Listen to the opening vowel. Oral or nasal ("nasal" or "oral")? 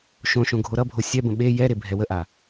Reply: nasal